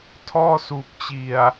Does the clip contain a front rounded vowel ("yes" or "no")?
no